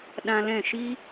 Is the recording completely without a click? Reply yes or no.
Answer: yes